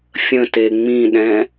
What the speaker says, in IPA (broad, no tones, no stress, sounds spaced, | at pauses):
fʲ ə̃ t e ŋ͡m ĩ ɗ ɛ̃